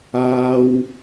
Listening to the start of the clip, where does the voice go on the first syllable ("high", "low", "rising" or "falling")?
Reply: high